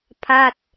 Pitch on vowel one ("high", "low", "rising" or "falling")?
falling